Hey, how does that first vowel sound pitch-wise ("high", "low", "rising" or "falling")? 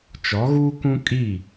rising